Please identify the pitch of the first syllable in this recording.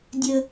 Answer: high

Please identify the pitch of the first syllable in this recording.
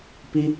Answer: high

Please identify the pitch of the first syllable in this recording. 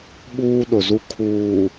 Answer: high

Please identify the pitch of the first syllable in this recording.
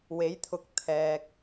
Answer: rising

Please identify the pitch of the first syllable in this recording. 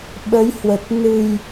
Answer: rising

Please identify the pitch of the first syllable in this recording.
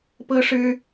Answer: high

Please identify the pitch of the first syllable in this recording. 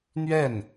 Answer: falling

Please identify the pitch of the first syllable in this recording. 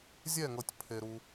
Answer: falling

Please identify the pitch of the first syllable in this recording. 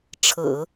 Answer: low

